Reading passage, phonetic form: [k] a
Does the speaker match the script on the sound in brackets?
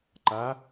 no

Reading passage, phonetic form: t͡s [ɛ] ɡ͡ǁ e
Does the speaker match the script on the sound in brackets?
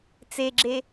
no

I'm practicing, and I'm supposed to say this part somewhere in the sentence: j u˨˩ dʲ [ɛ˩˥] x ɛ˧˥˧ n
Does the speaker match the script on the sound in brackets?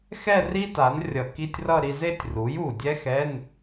no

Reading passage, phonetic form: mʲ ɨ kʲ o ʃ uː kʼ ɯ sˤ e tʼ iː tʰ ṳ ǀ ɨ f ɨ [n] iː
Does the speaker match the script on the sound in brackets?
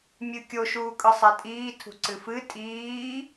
no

